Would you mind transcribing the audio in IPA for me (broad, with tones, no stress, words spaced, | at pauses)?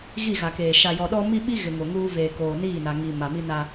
ɣi˦˨ɣa˨keː˨ ʃa˨jɔ˨ɗɔ˦ mi˦ɓi˦ ɣɪ˨ŋʊ˨ŋuː˦ veː˨koː˨niː˦˨na˨ ŋi˨ ma˨ mi˦na˦